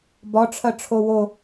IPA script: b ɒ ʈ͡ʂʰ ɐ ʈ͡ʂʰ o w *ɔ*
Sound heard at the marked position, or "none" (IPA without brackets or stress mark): o